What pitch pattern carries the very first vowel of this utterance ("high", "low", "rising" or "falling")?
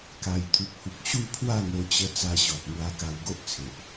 low